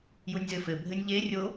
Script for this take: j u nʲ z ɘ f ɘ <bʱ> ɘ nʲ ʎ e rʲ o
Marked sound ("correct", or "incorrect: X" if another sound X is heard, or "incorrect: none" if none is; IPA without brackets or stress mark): correct